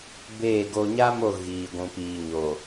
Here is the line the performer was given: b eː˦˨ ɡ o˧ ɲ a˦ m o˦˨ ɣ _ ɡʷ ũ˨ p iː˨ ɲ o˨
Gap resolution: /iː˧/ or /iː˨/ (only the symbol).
iː˨